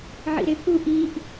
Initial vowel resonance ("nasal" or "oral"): oral